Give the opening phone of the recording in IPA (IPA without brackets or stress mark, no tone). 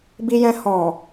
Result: b